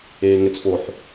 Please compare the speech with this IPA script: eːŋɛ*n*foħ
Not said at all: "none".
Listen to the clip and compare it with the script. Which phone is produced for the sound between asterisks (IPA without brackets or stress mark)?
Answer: t͡s